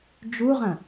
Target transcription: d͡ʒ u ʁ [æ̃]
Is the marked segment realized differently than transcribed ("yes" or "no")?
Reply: yes